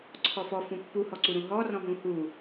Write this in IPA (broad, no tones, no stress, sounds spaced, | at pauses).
ǀʰ ɔ f ɔ f ũ pː u h ɔ ǀ u ɾ ũ ɦ ɔ r ɔ̃ ɦ ũ h u